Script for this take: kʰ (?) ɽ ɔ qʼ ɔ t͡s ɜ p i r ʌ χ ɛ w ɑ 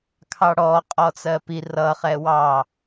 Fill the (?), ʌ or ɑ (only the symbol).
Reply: ɑ